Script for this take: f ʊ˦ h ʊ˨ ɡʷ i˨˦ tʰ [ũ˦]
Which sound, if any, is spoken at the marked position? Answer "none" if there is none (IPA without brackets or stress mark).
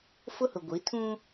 ũ˦